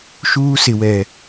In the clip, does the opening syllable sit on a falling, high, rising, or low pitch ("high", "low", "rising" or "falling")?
high